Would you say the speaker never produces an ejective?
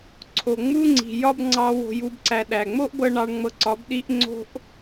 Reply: yes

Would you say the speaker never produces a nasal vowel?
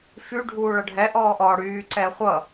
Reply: yes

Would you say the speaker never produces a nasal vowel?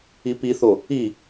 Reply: yes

